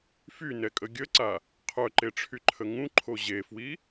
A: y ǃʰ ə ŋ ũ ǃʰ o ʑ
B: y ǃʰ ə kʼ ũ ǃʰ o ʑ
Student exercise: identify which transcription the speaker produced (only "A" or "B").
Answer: A